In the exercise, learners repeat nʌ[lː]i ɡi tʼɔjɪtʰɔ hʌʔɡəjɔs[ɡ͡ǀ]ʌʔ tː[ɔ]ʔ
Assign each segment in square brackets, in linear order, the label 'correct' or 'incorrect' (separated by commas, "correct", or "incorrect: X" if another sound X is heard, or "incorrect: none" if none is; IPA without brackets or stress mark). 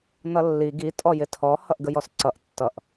correct, incorrect: ǀ, incorrect: ʌ